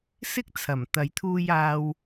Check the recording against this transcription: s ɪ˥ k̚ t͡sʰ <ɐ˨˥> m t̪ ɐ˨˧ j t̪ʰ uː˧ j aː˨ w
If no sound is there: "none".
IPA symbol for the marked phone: ɐ˨˩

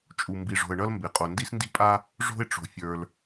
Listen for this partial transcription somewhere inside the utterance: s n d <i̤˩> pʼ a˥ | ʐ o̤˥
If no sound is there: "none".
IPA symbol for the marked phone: i̤˥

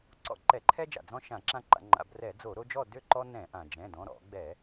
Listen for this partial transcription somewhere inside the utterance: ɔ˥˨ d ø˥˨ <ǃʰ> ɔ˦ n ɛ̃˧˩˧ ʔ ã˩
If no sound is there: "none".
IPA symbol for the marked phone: ǃ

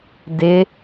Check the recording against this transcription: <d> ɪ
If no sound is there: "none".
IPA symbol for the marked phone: d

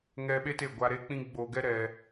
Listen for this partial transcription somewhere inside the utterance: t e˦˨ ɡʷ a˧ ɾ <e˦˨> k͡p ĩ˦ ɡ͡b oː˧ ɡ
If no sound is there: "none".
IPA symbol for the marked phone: e˦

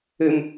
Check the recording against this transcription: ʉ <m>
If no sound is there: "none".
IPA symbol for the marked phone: m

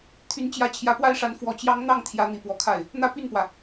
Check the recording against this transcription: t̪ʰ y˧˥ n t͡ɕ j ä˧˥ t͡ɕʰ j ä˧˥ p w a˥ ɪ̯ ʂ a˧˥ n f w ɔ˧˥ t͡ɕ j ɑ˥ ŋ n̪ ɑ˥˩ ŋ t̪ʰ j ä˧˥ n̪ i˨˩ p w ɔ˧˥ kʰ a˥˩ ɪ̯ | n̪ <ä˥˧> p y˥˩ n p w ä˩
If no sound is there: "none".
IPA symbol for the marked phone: ä˥˧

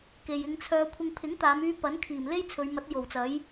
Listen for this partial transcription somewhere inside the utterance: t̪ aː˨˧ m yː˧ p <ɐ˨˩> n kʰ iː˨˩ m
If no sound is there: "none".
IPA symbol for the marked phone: ɐ˨˥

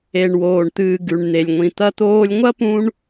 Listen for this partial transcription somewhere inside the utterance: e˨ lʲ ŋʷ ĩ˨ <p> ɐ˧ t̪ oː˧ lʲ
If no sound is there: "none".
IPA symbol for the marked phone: t̪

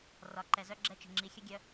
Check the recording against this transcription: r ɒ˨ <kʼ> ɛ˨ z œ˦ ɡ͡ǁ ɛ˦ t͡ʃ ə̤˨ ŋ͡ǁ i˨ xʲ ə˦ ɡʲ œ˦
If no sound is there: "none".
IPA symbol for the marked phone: ǃ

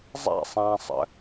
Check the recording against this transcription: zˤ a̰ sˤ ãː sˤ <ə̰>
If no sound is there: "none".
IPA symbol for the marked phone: ə̰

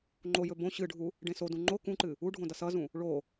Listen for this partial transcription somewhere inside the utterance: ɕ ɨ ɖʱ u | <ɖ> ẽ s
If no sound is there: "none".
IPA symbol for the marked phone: ɖ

